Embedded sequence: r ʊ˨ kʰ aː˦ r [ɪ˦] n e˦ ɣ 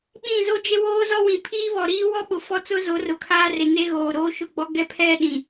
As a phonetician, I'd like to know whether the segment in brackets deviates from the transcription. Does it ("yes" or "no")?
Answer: yes